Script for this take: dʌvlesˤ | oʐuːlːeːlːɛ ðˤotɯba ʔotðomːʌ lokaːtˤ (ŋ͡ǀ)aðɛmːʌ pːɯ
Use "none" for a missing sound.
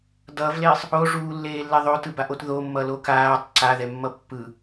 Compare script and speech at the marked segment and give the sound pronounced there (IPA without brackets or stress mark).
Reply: ǀ